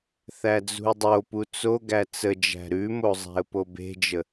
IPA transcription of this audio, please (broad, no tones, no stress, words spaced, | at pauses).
θæd͡zṳɪ̯dˤopu t͡soɡæ t͡səd͡ʒæ̤ ɾʉmo zˤæ̤ə̯pobe̤d͡ʒə